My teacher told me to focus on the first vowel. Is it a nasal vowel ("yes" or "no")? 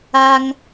no